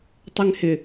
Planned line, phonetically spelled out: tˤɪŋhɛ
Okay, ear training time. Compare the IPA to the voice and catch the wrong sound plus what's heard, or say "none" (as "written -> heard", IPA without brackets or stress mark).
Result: ɛ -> ɪ